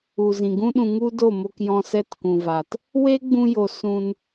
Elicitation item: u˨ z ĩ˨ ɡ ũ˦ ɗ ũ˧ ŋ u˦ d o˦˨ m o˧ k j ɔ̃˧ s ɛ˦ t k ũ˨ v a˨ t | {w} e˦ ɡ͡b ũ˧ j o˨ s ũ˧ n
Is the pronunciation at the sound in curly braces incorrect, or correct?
correct